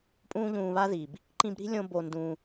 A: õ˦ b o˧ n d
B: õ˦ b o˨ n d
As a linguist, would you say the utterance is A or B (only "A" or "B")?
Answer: A